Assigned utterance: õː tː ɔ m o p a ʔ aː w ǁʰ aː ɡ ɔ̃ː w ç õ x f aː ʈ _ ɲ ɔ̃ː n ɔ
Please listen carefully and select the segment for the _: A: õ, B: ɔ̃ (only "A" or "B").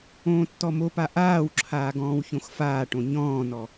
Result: A